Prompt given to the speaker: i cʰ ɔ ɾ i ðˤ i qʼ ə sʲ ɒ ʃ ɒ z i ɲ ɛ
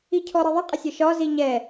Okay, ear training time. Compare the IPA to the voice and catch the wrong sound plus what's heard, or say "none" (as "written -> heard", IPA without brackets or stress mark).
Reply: none